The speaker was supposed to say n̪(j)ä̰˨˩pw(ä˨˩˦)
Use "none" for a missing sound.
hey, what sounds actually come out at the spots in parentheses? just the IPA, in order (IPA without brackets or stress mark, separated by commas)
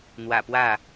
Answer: w, ä˥˩